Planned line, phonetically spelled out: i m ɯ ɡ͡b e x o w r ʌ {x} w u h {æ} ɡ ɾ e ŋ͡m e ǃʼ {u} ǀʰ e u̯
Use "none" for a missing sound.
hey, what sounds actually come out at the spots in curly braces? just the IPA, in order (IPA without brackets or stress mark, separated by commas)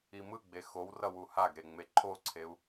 none, a, o